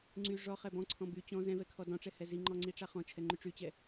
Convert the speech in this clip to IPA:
ŋ͡ǀy ʐɔχɛ bɔ̃ǀʰɔ̃ by t͡ɕɔ̃ zɛ̃vɛ kʰɔdɔ̃ʈ͡ʂɛ hɛziŋ͡ǃɔ ŋ͡ǀiʈ͡ʂaχɔ̃t͡ʃʰɛ ŋ͡ǃyʈ͡ʂyt͡ɕɛ

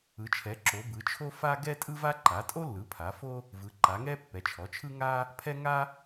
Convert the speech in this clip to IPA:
ɯ˩˥t͡ʃʰɛ˩˥ǁo˩˥ bɯ˩˥t͡ʃʰo˥fa˥ ɡɛ˥tʼɯ˥va˥ ǃa˩˥tʼo˥lːɯ˩˥ pʰa˩˥fo˥ | vɯ˩˥ǃa˩˥ŋɛ˥ pːɛ˩˥t͡ʃʰɔ˩˥t͡ʃʰɯ˥ ŋa˥ | pʰɛ˥ŋa˥

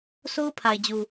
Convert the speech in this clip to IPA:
so˦ʊ̯pʰa˨ɪ̯ d͡ʑu˨

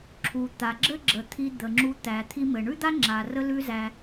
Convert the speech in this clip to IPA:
ǁʰu˩ t̪a˩ɡ͡ǁɘ˥ɡ͡ǁə˩ t̪ʰi˧d̪ə˩ŋ͡ǁu˧ t̪æ˩t̪ʰi˧ mɘ˩ɳʉ˥d̪a˥ ŋ͡ǁa˩rə˧lʉ˧ zæ˧

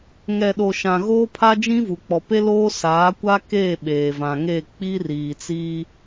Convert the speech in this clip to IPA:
ŋɛ˨ɗo˨ʃã˨ ɣoː˦pʰa˦d͡ʒĩ˦vu˨ k͡pɔ˨pe˦loː˦ saː˨˦kʷa˦ keː˦˨ ɓeː˨ vã˨ŋe˦˨ k͡pi˦riː˨t͡si˦

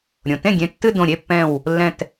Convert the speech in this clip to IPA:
ɾʲõ˩tẽ˥˩ɡʲẽ˧˩ tːɨ˥˧dõ˧˩ ɾʲe˥˧pːɛ̃˧˩w | lːɛ̃˧˩t

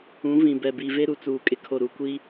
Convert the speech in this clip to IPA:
ũ˨˦ vĩ˨bɛ˨bi˨ ve˦ɾu˨t͡suː˨ kʼɪ˦kʰo˨ ɾu˨kʷi˦

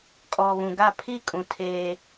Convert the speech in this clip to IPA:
kʼɔ˨βũ˨ɡa˦˨ pʰi˦˨kʼũ˨ tʰeː˦

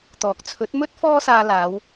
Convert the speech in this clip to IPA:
t̪ɔː˨k̚ t͡sʰɵ˨˥t̚mɵ˥t̚ fɔː˥saː˧ laː˨˧w

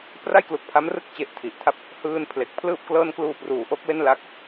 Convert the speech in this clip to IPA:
pra˥˩jklu˨˩k̚pʰa˦˥mrɯ˥˩k̚ t͡ɕe˦˥ʔtʰi˨˩ʔtʰa˥˩p̚ | hɯː˧n pʰle˨˩k̚pʰlɯː˥˩p̚klɤː˥˩n kluː˧pruː˩˦ʔo˦˥k̚ we˥˩nla˦˥k̚

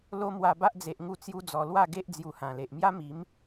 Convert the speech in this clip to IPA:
lo˦mwa˧ba˦ʔd͡ze˨ʔ ŋu˥˧t͡sju˦d͡zɔ˧ lwa˥˧ɡe˦ʔ d͡zju˧hã˨˩le˨ʔ mja˦mi˨˦m

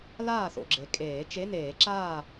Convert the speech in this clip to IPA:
laː˥˨θo̰˨ɡ͡ǁe˩˥kʼeː˨˩˦ t͡ʃe˧˥˧neː˨˩˦ ǁaː˥˨

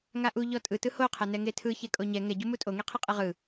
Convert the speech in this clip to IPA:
ŋaʔu ʎɔtʼɯ tɯhoqʰɛnɛ ŋetʰɯçe kʼoɲɛ ŋɛ ɟumutʼoŋe qʰeqʼeʁɯ

